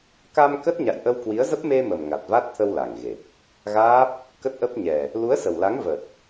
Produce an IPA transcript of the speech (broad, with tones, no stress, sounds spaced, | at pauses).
k a˧ m k ə˦˥ t̚ ɲ a̰˧˨ j ʔ ə˧ w k w i˨˦ ə̯ z ə˦˥ p̚ m e˧ m ə˨˩ m ŋ a˨˩ t̚ v a˦˥ t̚ t̪ʰ ə˧ w l a˨˩ ŋ ɣ e˨˩ p̚ | ɣ aː˦˥ p̚ | k ə˦˥ t̚ ʔ ə˦˥ p̚ ɲ ɛ˨˩ | l u˨˦ ə̯ s ə˨˩ w l a˨˦ ŋ v ə˨˩ t̚